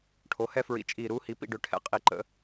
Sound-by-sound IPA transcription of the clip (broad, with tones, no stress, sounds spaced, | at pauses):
ʈʰ o˩˥ h ɛ˧ f ɹ ḭ˨˩ t͡ʃʼ iː˨˩ ɾ uː˧ h i˩˥ p ḭ˥˨ ɖ ø˧ ʈʰ ɛ̰˨˩ qʼ i˨˩ ǃ ə̰˩˥